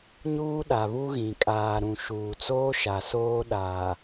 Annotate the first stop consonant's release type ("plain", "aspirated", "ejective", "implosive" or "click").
implosive